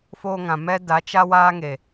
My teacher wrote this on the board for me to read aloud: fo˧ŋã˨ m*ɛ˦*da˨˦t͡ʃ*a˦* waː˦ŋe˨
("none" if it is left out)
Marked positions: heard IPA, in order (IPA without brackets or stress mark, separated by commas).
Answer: ɛ˦, a˦